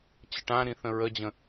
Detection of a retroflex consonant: present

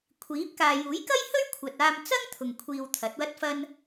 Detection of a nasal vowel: absent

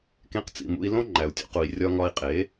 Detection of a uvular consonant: present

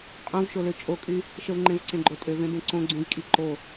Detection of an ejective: present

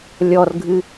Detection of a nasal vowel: absent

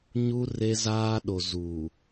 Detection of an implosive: present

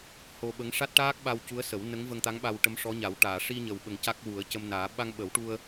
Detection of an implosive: present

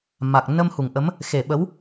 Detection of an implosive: present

